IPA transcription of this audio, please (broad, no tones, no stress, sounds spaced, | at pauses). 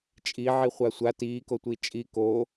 t͡ʃʼ i ʕ i χʷ a sʷ a t iː k o tʷ iː t͡ʃʼ i k oː